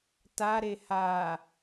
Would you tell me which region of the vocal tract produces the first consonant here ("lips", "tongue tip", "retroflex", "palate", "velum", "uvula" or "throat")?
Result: tongue tip